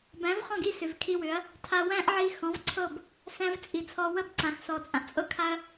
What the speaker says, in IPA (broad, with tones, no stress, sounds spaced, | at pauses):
b æ̃˨˦ v χ ɔ̃˦˨ ɡ i˦˨ s ʏ˨ v kʰ i˧ w ʏ˨˦ ɐ̯ | tʰ a˧ w æ̃˦ ʔ ʕ i˧ x ɔ̃˨˦ v ǀʰ ɤ˦˨ b | s æ̃˧ v t͡sʼ i˨ t͡sʰ ɔ˧ w ə˦ b ǀ ã˨ x s ɔ˨ t͡sʼ ã˨ ʔ t͡sʼ ɤ˦ kʰ a˦ ɐ̯